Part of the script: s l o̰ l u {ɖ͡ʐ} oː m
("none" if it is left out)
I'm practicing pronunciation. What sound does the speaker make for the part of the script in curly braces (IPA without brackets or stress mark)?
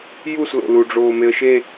ɖ͡ʐ